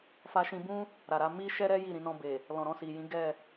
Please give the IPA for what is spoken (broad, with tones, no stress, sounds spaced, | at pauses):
f a˧ ʃ ĩ˧ b ũ˦ | ɾ a˨ ɾ a˧ m i˦ ʃ ɛ˦ ɾ ɛ˦ j i˦˨ ɾ ĩ˧ n ɔ̃˧ b e˨ | l ɔ̃˨ ɾ ɔ̃˧ s i˨ j ĩ˨˦ ɡ ɛ˦˨